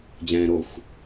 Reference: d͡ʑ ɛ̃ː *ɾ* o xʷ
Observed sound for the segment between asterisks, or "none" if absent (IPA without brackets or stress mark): ɾ